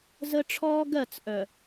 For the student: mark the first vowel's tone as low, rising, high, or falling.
high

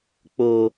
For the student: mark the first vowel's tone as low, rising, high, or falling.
low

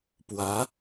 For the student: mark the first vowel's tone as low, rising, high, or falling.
rising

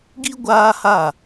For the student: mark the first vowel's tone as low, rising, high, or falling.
high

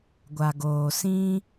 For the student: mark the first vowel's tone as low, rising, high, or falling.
low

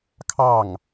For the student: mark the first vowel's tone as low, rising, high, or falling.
falling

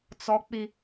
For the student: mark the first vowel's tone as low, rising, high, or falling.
high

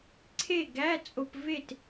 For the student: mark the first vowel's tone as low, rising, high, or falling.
falling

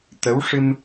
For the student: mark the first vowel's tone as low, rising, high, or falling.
rising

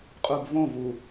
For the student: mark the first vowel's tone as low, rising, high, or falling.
low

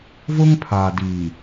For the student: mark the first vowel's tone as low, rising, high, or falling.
high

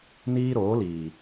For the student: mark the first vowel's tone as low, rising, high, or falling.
high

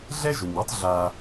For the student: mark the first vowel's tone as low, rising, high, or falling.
high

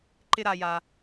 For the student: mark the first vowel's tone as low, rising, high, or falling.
high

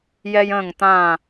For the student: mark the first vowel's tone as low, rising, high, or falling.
high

